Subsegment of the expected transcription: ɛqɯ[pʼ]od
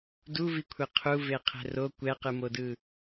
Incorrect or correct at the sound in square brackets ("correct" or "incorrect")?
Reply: incorrect